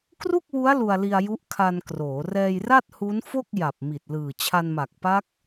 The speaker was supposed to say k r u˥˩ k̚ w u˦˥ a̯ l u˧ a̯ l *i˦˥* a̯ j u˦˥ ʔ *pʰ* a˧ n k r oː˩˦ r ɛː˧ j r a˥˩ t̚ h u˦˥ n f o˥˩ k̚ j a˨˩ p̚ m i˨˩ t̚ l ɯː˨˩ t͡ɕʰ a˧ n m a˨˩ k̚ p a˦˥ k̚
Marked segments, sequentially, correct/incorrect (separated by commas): incorrect, incorrect